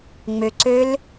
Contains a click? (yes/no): yes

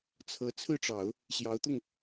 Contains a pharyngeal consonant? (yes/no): no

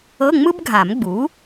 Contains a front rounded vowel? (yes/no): no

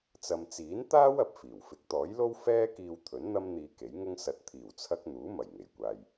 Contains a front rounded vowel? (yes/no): no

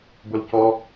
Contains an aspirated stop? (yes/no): no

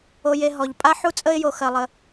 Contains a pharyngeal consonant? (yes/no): yes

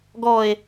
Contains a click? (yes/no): no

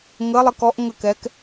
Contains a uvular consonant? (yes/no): no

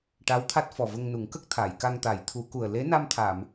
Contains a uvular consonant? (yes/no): no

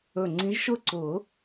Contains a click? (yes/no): yes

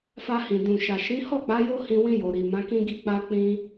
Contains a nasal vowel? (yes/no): yes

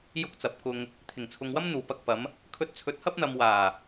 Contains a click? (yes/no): no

